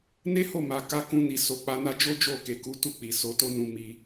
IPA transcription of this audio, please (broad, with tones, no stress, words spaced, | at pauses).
ne˦ho˦˨ma˨ ka˧kũ˧ni˨ so˨k͡pa˧na˦ d͡ʒo˦d͡ʒo˦˨ke˨ku˨˦ tu˦˨k͡pi˨ so˨˦to˦nũ˧ mi˧